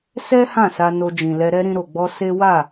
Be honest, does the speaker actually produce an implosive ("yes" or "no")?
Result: no